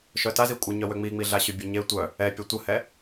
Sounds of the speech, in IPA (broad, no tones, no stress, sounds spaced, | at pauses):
ʃ œ t a z i kʷʼ ə ɲ œ w ø ŋ͡m i ŋ͡m i ɮ a ɕ y bʲ ø ɲ e tʷ œ | ɛ pʲ ə tʷ ə h ɛ